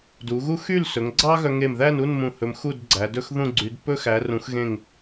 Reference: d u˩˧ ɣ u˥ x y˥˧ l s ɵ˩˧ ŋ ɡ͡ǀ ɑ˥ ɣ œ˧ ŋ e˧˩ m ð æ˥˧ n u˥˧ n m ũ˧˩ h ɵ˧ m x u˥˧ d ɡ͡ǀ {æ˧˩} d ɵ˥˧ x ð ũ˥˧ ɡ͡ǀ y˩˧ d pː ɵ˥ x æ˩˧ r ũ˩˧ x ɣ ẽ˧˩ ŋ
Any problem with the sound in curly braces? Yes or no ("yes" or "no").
yes